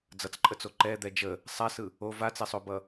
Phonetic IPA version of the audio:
d͡z ʌ t͡s ǃʼ ə t͡s o ǃ ɛ d̪ ɛ d͡ʒ ə | sˤ a s ɯ | o v a t͡s ɛ sˤ o b ʌ

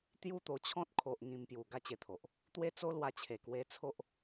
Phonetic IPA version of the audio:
t̪ j u˥˧ t̪ o˧ t͡ɕʰ ɔ̃˦ t̚ kʰ o˨ ʔ ŋ ĩ˧ m p j u˨˩ ɡ a˦ t͡ɕ e˧ t̪ʰ o˨ ʔ | t̪ w e˦ t͡s o˦ l w a˧ t͡ɕʰ e˨˩ k w e˧ t͡sʰ o˦ ʔ

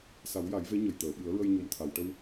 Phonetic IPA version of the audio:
s a˨˩˦ w j a˨˩˦ j v e˧˥ ɲ ə˨˩ j t̪ əː˨˩˨ ɓ ɨ˨˩˦ ə̯ ɹ ə˧ j ɲ o˨˩ m t̪ʰ a˨˩˨ w ʈ ə˧ w

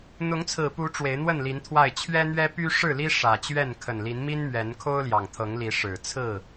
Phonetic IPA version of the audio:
n̪ ʊ˨˦ ŋ t͡sʰ ɹ̩˨˩ p u˨˦ ʈ͡ʂ w e˨˦ ɪ̯ n̪ w ə˥˨ n l i˨˦ n t̪ʰ w a˥˨ ɪ̯ t͡ɕʰ ɥ ɛ˦ n̪ ɥ ɛ˦ p y˦ ʂ ɻ̩˥˨ l i˦ ʂ ä˨˩ t͡ɕ ɥ ɛ˥˨ n kʰ ə˨˩ n l i˨˦ n m i˦ n m ɥ ɛ˨˦ n kʰ o˦ ʊ̯ l j ɑ˨˩ ŋ t̪ʰ ɤ˨˦ ŋ l i˨˦ ʂ ɻ̩˨˩ t͡sʰ ɹ̩˥˨

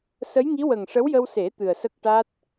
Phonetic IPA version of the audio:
s ə˧˥ j ŋ i˧˥ w ə˨˩ ŋ ʂ ə˧˥ w j ə˧ w s e˨˩˦ t̪ ɨ˨˩ ə̯ s ə˦˥ k̚ ʈ a˦˥ t̚

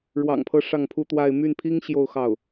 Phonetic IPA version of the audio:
ɻ w ɑ̰˨˩ ŋ pʰ ɤ˥ ʂ ɑ˥˩ ŋ pʰ u˥ t̪ w a˥˧ ɪ̯ m y˥˩ n pʰ i˥ ŋ ɕ j o˥˧ ʊ̯ x ɑ˥˩ ʊ̯

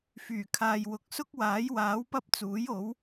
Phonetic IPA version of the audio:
f yː˨˩ kʰ aː˨ j w ʊ˨ k̚ s ʊ˥ k̚ w aː˨˥ j w aː˨˥ w p ɐ˥ p̚ t͡s uː˨˥ j o˨˥ w

